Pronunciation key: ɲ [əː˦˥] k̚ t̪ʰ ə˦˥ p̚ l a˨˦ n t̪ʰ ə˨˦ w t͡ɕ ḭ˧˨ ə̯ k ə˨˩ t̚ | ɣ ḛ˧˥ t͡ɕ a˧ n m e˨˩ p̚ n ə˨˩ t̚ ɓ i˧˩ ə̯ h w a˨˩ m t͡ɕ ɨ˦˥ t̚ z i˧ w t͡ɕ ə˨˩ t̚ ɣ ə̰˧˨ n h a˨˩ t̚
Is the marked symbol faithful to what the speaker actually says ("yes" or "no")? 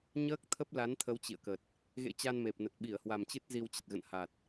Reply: yes